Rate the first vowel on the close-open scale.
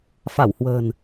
open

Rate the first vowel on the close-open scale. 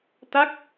open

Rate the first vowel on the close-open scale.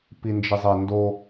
close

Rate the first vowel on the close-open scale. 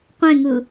mid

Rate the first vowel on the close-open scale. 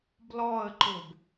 mid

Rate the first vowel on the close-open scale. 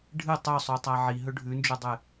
close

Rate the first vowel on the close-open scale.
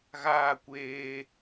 open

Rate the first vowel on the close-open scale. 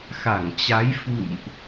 open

